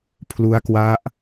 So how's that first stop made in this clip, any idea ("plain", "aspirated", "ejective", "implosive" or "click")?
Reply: aspirated